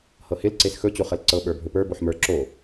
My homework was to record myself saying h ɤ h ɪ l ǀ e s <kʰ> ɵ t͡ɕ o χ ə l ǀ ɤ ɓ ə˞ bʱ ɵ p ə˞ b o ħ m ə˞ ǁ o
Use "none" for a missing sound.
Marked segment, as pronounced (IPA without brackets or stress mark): x